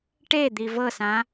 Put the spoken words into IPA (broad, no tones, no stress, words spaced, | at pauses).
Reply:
ʈed̪i vɤsã